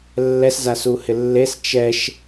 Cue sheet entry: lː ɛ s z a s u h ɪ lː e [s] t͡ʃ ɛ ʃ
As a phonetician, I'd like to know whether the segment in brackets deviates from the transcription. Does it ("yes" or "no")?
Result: no